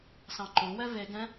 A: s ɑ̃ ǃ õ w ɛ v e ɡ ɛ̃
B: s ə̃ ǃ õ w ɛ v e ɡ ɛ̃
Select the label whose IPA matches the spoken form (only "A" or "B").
A